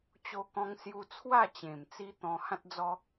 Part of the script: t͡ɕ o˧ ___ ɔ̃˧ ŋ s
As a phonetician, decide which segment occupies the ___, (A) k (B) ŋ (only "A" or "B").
A